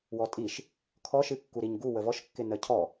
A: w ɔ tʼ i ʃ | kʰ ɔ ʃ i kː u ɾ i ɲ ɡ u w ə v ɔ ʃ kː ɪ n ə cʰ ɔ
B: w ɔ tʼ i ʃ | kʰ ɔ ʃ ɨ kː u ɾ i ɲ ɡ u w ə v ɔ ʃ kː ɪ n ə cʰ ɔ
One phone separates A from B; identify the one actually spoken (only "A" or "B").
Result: B